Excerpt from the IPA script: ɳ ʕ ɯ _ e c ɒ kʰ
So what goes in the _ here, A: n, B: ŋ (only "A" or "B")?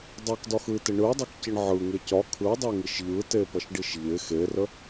B